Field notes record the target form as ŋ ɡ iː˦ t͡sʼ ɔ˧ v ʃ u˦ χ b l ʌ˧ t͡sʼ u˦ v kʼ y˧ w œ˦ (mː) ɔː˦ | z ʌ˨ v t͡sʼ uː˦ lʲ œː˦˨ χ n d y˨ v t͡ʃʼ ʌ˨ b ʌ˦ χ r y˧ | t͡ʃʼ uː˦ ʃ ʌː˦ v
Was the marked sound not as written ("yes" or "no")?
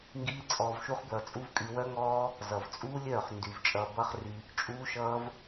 yes